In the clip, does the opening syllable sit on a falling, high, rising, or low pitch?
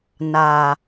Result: low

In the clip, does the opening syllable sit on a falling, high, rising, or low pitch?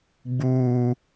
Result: high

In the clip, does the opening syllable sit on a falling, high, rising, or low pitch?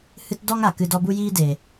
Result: high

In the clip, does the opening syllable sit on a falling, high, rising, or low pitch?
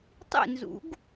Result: falling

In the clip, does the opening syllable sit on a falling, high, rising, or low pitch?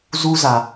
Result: high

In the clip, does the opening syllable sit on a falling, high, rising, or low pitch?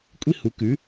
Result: high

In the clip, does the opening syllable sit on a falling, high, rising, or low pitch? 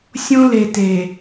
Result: high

